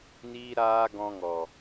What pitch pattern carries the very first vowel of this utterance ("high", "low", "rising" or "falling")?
high